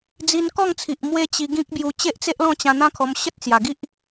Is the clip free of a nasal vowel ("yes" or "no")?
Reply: no